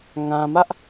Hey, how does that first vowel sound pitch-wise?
low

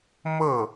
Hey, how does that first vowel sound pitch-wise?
falling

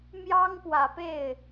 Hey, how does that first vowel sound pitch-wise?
high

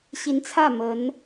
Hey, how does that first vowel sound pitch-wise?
rising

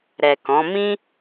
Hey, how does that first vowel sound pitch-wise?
low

